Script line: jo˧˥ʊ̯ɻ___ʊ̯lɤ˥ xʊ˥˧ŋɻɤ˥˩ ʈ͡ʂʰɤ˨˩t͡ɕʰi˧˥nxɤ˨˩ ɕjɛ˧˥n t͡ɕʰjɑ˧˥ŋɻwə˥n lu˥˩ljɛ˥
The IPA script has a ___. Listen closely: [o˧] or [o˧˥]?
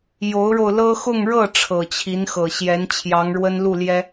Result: o˧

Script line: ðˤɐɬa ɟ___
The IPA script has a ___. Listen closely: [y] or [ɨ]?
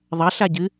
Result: ɨ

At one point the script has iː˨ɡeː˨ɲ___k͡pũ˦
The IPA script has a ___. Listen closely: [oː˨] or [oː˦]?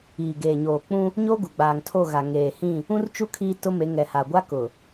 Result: oː˨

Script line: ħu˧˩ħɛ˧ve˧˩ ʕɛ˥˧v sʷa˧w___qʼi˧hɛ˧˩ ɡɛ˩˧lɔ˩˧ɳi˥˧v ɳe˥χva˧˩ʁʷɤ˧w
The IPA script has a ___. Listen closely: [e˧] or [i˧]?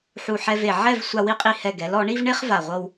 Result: i˧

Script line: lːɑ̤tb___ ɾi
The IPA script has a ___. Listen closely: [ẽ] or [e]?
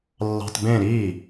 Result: ẽ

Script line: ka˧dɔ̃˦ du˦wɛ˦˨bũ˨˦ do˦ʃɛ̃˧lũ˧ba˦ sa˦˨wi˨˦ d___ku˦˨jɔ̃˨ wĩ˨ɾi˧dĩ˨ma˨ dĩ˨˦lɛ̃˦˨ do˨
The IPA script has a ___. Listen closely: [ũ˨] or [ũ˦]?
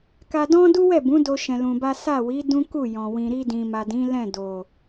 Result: ũ˦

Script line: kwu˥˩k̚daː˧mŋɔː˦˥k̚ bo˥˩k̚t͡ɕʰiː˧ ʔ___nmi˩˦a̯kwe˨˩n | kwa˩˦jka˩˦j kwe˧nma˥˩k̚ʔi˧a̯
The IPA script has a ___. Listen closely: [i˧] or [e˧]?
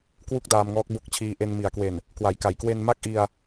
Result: e˧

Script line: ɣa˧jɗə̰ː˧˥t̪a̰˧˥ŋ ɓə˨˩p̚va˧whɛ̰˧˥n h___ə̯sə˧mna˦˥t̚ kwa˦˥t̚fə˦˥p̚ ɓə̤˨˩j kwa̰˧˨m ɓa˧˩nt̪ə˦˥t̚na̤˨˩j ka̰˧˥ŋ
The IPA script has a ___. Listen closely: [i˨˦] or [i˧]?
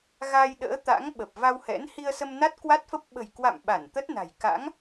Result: i˧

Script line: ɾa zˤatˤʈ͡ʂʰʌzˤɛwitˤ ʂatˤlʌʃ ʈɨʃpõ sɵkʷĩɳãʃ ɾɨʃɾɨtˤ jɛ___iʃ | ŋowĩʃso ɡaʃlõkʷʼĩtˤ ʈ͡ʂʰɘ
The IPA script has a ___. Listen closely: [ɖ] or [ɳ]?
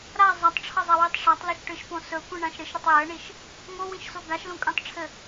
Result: ɳ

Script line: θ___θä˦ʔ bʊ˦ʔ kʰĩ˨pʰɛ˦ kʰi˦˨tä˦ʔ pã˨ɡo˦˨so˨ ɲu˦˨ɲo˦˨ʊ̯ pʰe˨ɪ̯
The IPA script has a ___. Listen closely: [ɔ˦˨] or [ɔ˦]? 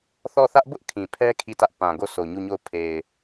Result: ɔ˦˨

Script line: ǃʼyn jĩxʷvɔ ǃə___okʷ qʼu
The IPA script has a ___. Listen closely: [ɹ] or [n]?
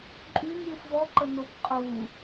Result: n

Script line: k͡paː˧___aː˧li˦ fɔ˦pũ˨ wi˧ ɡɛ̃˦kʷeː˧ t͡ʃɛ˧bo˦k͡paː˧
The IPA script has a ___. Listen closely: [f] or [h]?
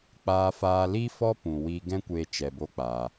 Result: f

